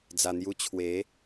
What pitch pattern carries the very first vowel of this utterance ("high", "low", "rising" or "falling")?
low